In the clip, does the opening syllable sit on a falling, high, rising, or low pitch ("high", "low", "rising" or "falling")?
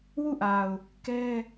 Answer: falling